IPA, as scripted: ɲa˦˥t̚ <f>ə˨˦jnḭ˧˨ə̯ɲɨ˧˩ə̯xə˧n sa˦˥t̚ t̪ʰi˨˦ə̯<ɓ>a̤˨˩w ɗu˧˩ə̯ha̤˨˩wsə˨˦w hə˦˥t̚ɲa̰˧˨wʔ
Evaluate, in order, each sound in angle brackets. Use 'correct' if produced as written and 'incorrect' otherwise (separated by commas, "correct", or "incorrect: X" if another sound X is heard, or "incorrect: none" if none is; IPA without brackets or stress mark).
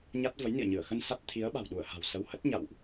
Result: incorrect: v, correct